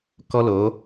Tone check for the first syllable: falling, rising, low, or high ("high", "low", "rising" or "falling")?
high